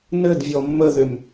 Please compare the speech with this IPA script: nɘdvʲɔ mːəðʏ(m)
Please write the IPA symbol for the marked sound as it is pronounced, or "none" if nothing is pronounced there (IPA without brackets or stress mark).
m